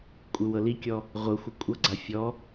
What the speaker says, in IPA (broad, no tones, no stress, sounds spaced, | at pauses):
kʷʼ ɯ w ɤ l i kʲ ɔ | ʁʷ ɤ xʷ ɯ kʷʼ ɤ ɡ͡ǀ a fʲ ɔ